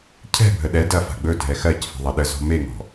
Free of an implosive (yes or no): no